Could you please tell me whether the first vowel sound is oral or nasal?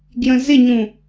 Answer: nasal